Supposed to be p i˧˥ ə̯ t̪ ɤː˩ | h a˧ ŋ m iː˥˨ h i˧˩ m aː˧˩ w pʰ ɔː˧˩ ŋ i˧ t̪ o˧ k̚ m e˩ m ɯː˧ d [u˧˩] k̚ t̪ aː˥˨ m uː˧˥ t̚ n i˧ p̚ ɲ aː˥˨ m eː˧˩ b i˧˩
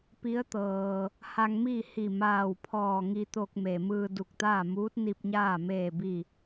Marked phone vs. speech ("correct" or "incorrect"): correct